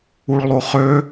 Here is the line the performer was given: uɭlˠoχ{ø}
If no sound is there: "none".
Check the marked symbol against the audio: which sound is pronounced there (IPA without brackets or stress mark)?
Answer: ø